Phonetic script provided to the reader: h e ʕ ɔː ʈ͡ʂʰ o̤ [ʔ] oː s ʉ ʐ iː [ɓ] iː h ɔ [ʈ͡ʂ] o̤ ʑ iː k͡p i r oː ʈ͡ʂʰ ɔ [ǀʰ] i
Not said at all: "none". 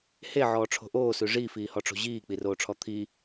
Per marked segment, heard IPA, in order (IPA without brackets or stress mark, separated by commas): ʔ, f, ʈ͡ʂ, t̪ʰ